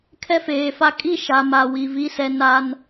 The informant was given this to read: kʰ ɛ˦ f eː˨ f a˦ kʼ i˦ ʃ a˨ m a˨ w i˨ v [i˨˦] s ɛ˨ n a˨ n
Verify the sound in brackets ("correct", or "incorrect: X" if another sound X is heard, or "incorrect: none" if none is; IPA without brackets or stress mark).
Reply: correct